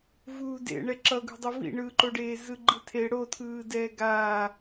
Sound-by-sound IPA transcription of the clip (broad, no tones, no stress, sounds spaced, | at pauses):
v uː d ḛ ɳ ɛ ǁ ʌ ɡ ṳ dˤ o v ḭ ɳ ɯː ǃ o ɖ eː z ɯ ɡ͡ǃ ɯ tʰ e ɽ o tʰ ɯː d ɛː ɡ aː